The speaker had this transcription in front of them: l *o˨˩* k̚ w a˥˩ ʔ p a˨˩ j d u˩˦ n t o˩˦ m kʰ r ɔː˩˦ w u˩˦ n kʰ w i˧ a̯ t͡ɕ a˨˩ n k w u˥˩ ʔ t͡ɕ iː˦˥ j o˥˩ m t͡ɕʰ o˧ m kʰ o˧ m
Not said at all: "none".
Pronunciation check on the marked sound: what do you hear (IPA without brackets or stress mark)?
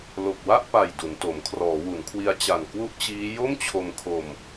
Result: o˨˩